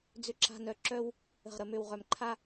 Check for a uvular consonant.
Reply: present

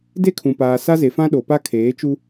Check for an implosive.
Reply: present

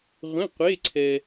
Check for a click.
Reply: present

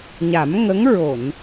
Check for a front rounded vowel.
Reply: absent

